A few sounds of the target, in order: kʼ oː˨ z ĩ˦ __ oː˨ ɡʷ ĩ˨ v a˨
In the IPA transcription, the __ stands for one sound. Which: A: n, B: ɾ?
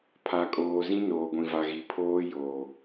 A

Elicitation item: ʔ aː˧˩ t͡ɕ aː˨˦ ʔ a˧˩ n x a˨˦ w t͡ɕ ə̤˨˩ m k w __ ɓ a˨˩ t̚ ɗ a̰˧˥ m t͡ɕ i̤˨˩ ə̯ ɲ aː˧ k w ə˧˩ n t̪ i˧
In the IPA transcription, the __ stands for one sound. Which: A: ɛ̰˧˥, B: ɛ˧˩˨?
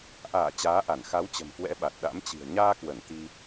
A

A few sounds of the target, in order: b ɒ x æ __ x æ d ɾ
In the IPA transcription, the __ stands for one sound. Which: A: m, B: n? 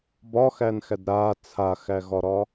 B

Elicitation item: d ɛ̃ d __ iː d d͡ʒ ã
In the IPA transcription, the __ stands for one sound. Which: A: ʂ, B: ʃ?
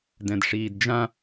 A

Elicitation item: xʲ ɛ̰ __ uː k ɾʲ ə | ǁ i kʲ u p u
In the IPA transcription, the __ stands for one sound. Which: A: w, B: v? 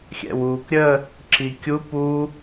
A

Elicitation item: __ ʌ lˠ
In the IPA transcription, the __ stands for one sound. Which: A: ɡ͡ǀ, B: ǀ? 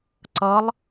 B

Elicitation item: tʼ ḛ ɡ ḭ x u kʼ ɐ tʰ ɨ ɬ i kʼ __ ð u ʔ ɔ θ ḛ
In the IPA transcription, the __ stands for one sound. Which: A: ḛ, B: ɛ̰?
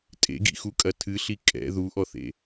B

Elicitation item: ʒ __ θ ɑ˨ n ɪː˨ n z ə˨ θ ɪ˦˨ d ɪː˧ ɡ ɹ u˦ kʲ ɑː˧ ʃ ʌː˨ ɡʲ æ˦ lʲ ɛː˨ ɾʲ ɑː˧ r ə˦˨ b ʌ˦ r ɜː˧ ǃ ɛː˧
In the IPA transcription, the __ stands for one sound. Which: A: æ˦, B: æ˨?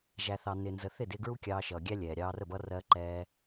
B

